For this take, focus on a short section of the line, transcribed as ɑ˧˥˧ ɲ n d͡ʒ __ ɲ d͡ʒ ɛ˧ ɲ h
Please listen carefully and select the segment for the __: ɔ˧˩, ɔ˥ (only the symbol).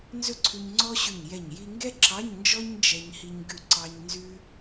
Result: ɔ˥